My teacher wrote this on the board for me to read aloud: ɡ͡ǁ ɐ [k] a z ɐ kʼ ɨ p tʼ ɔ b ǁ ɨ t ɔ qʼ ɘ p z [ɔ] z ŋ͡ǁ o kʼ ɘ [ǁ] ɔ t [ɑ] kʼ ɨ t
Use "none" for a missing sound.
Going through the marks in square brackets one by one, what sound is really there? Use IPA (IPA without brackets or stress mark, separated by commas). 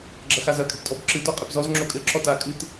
x, ɔ, ǁ, a